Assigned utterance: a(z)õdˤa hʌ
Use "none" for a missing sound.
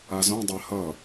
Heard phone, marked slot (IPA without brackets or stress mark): z